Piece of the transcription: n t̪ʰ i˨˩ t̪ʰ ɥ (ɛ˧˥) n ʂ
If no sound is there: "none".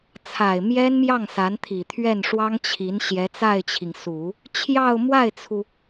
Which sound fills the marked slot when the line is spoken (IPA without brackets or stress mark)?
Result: ɛ˥˩